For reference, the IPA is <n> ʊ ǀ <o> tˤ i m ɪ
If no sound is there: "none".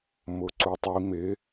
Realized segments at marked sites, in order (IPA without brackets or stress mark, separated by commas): m, u